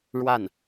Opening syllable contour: falling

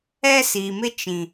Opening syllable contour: high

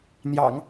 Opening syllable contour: low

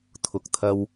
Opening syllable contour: rising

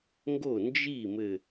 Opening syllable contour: falling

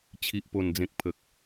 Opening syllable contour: low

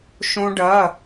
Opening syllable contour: high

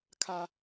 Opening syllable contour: high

